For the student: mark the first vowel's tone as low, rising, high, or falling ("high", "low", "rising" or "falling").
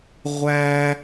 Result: high